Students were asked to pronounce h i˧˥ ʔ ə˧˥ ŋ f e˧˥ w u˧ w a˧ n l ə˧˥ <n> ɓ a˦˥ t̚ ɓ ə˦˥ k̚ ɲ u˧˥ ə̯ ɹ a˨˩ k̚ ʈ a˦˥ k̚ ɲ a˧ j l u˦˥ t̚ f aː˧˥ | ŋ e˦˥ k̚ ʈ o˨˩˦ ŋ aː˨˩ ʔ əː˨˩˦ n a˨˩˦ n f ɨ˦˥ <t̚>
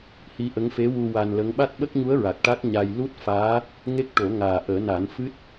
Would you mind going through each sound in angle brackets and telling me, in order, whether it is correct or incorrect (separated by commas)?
incorrect, correct